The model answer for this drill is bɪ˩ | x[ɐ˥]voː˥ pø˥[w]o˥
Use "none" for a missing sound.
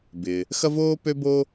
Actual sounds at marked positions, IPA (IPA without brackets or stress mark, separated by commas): ɐ˥, b